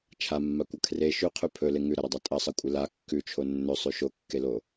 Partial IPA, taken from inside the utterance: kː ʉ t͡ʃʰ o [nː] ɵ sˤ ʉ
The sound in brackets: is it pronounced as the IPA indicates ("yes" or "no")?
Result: yes